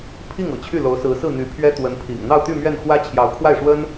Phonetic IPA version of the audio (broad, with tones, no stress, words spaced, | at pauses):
pʰi˥˩ŋ ɤ̰˨˩t͡ɕʰy˥˩lo˧˥ʊ̯sɹ̩˧˥ sɹ̩˥˩ n̪y˧˥ pʰɥɛ˥ t̪wə˧˥npʰḭ˨˩ŋ n̪ɑ˥˧ʊ̯t̪y˥˧ mɥɛ˥˩n xwä˥t͡ɕʰjɑ˧˥ʊ̯kʰwa˥˩ɪ̯ʂwə˥n